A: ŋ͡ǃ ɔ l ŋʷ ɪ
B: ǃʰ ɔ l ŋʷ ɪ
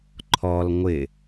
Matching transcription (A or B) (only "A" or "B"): B